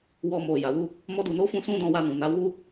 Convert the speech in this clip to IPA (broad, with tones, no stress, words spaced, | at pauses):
wɔ˧mo˨ ja˨wu˧ | mɔ˦du˧no˦ fũ˦sũ˦dɔ̃˧ wa˧nũ˨na˨˦ wu˦